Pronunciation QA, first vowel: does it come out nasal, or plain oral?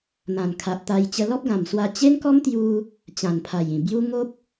nasal